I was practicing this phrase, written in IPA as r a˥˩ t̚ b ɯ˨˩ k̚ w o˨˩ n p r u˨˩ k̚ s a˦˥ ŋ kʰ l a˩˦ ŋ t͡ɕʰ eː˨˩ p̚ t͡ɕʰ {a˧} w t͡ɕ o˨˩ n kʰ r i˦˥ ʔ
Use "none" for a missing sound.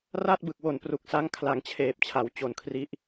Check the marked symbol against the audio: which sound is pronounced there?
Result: a˩˦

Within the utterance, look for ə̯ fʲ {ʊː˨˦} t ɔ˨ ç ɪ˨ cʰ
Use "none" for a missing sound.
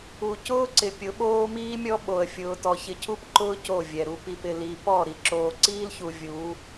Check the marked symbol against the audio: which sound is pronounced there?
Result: ʊː˨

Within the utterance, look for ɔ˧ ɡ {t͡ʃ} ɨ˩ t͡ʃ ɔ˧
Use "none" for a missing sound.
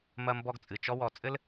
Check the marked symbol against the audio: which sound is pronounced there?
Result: t͡sʼ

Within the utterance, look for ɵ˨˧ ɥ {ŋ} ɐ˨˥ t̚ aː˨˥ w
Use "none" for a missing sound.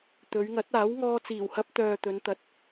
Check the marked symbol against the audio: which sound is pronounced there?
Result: ŋ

